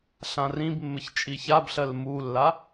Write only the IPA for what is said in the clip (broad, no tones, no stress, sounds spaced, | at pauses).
ɬ ã r ĩ b mː ɘ ç t͡ʃʼ i ç a b ɬ ɜ l m u lː a